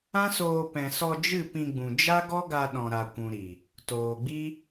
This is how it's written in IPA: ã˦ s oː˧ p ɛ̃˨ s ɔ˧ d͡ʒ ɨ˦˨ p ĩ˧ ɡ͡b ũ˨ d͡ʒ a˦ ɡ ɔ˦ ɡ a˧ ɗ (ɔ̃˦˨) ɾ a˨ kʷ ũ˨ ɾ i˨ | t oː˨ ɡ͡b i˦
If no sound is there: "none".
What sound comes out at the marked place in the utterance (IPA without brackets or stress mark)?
ɔ̃˨